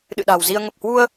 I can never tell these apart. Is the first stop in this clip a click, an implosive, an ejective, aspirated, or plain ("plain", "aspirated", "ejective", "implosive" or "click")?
implosive